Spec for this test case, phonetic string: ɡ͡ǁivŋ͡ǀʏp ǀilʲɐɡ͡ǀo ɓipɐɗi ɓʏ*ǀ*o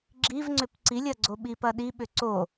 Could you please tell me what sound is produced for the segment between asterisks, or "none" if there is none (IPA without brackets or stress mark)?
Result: ǀ